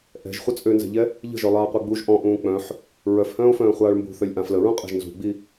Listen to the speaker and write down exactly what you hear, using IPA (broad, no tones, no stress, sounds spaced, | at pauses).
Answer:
ʔ ɛ̤ ʒ χʷ ə t͡sʼ ø n z ɛ̤ ʎ ɛ | ʎ ə̤ ʒ œ lˠ aː qʷ e ɡ͡b u ʒ ʔ ɔ̃ ʔ ũː k͡p œ̃ ħ | ɹ œ f h œ̃ː o̯ f œ̃ː χʷ aː ɭ m b ṳ θ œ lʲ ʔ ã f l ə ɹ ũ qʼ e̤ ʒ n z ṳ ɡ͡b i